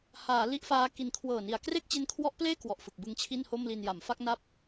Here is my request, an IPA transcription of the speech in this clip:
haː˩˦ li˥˩ʔfaː˦˥ki˧n kʰwɤː˨˩ni˩˦a̯ kre˥˩k̚t͡ɕe˦˥nkʰwɔ˦˥ʔpleː˥˩ kwɔ˨˩ʔfɯ˨˩k̚bɯ˧ŋ t͡ɕʰi˥˩nho˥˩mli˧nja˩˦m fa˥˩k̚na˦˥p̚

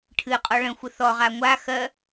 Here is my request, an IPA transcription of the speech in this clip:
ʈʰɨqʼɔ ɭə̃ xʷəθɔʁa ŋʷa xɜ

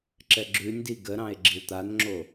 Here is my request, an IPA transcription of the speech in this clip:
ǁɛɡ͡ǁʉnʲdi ɡəɾɑ̃e̯ ɡ͡ǁiwt̪anŋ͡ǁo

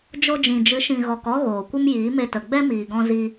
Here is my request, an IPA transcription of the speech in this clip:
d͡ʒo˧d͡ʒĩ˨d͡ʒɨ˨˦ ʃĩ˨ɣɔ˨k ɔ˦ɣoː˨kʷə˦m jiː˨˦me˧tə˨ ɡ͡bɛ˦miː˨ɡɔ̃˧ zi˧

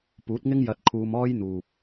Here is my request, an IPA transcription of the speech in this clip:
puː˨˥t̚ŋɪ˥ŋ jɐ˧t̚kʰuː˧mɔː˥jn̪uː˨p̚

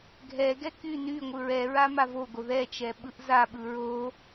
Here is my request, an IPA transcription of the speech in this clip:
ɡʱɛɡɛ ky ny ŋʷɯɹɛɹa mavoɡo ðɛ t͡ʃɛɓɯʔzaɓɯ ɹo

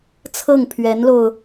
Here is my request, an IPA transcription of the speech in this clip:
t͡sʰɤ˥˩ŋpʰɥɛ˧˥nlo˧ʊ̯

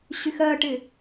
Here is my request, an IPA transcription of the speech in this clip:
ɕyxɜʈɪ

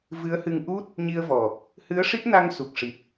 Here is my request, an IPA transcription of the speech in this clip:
vɨ˧˥ə̯hɨ˧ŋ ʔu˦˥t̚ | ɲi˧ə̯vɔ˨˩ | hɨ˧˥ə̯ʂi˦˥p̚na˧ŋsu˨˩k̚ ʂi˨˩p̚

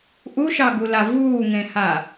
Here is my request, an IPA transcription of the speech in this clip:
ʔuʃɑɡula vuːŋẽha

